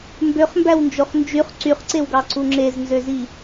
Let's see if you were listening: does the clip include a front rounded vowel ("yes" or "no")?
yes